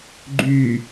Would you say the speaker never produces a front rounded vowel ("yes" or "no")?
no